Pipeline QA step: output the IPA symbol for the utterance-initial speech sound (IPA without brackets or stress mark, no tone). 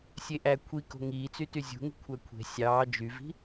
sʲ